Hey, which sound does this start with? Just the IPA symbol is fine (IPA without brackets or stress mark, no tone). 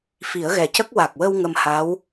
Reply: f